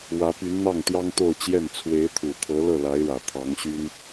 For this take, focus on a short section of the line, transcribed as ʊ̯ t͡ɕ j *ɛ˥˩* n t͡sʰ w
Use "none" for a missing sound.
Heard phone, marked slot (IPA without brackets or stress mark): ɛ˥˩